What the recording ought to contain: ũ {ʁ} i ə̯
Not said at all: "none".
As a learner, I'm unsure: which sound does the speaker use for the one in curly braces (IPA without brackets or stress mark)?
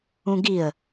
ɡ